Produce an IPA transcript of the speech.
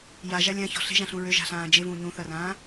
j a ʒ a lʲ ã ç ɔ̤ ɬ e̤ ʒ ã ɬ ũ ɹ ø ʒ a̤ ɬ ãː d͡ʒ e v ũː ɲ ũ θ ɐ r ãː

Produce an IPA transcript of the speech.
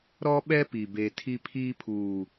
ɾ ɔ˦ ɓ ɛ˦ p i˨ b e˦ tʰ i˦ pʰ iː˦ pʰ uː˨

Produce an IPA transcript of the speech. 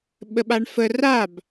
ɓ ə ɓ a ɳ f ə r a b

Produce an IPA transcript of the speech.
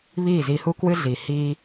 β iː˦˨ z i˧ h u˧ k w ɨ˧ ɮ iː˨ h iː˧

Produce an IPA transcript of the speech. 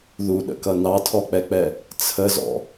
ð u ɗ ə̰ k ʌ n ɑ tʰ ɔ k͡p ɛ k͡p ɛ | t͡sʰ ə z ɔ̰

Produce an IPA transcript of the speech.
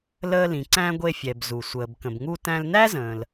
l əː˧ l ĩ˩ ǀ æ̃˧ ɡʷ e˧ fʲ ɛ˩ b z u˩ sʷ əː˩ b k ə̃˩ b ŋ u˧ t æ̃˧ l n æ˥ z ə̃ː˩ l

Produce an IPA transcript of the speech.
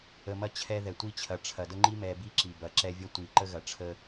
ə˨ m ɐ˦ t͡ɕʰ ɛ˦ ð ɛ˨ tʷ i˦ t͡ɕʰ ɐ˨ ʈ͡ʂʰ ɐ˨ d ə˦ ŋ͡ǃ i˦ m ɛ˨ b i˦ ǁ i˨ b ɐ˨˦ ǁ ɛ˦ vʲ ɐ˦ tʷ i˨ ǃ ə˦ ɣ ɐ˨ ʈ͡ʂʰ ə˦

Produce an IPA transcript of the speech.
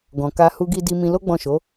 ɡ ɔ̃˨ k a˧ h u˧ ɡ i˧ d i˧ m ĩ˧ l o˦ ɡ͡b ɔ̃˦˨ ʃ o˨˦

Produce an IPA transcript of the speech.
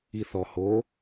i θ ɔ h o

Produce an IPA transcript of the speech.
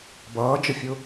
b ʌː d͡ʒ ə fʲ ʊ

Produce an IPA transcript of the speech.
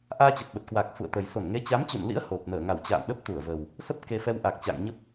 ʔ aː˧ t͡ɕ ə˨˩ p̚ ɓ ə˨˩ t̚ k w aː˨˩ k̚ f ṵ˧˨ ə̯ t̪ ə˨˩ j s o˧˩ n ŋ e˨˦ t͡ɕ a˨˦ m t͡ɕ ṵ˧˨ n l ḭ˧˥ ə̯ h o˨˩ p̚ n əː˧˩ ŋ a˧˩ w t͡ɕ a̰ː˧˨ m ɗ ə˦˥ p̚ t̪ u˧˩ ə̯ v ə˨˩ w | s ə˦˥ p̚ k e˧ f ɛ˧ w ʔ a˨˩ k̚ t͡ɕ a̰ː˧˨ ŋ ɲ ə˦˥ p̚

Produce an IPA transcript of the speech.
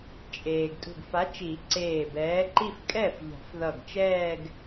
t͡ʃʼ eː˩ ɡ tʼ ṳ˧˩ ɡ f a˨˥ t͡ʃ i˨˩˦ ǀ eː˧˩ b ɛː˨˥ ǃ i˥˧ f kʼ ɛ˥˩ f ʎ a̤˨˩˦ f ð ʌ˧˩ ɡ t͡ʃ ɛː˥˧ ɡ

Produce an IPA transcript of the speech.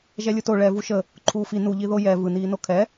ʒ ɛ lʲ ɯ t o ɭ ɛ v u ʃ ə | ǃʰ uː f i n u ʎ i ð o j ɛ v ɯ n iː n o kʰ ɛ

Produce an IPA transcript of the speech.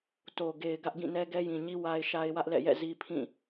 t o˨ ɡ e˨ ɪ̯ ɡ ä˦ ʔ ɡ ĩ˦˨ n ɛ˦ ɡ ɛ˦ j ĩ˨ ɲ i˦ w a˦ ɪ̯ ʃ a˦ ɪ̯ w ä˦ ʔ l ɛ̰˦˨ j ɛ̰˦˨ z i˦ pʰ ĩ˦˨

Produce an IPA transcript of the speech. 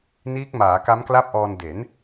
n iː˦˥ k̚ m aː˩˦ k a˦˥ m k l a˥˩ p̚ ʔ ɔː˧ n d e˩˦ n

